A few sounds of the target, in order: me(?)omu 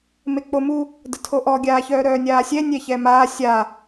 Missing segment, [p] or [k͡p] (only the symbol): k͡p